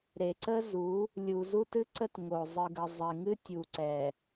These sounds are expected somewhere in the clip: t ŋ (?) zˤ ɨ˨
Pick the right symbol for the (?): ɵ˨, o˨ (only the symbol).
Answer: o˨